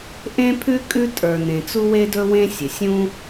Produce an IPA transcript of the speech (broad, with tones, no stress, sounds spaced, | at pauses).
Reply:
ʔ ẽ˥ pʰ ʉ˥ kʼ ʉ˥ tʼ ə˞˩ n ẽ˩ t͡s u˥ w e˥ d ɵ˥ w ẽ˥ sʲ ɘ˩ sʲ ũ˥